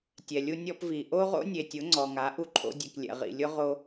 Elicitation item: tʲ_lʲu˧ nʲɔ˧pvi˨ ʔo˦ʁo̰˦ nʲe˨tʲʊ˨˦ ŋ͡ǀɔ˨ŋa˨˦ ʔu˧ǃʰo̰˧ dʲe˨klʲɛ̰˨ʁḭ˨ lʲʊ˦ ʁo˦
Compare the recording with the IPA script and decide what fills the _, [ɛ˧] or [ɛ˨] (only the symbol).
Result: ɛ˨